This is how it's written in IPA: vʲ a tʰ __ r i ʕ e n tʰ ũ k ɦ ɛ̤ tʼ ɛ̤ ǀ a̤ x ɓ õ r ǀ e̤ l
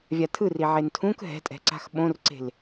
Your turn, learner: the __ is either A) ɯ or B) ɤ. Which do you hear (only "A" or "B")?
A